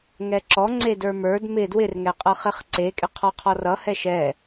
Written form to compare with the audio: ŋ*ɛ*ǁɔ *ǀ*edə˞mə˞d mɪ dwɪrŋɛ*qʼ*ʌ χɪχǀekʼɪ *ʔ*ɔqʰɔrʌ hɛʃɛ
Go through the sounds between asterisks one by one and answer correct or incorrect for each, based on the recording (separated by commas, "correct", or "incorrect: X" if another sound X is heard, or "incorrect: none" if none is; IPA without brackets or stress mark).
correct, incorrect: ŋ͡ǀ, correct, incorrect: qʰ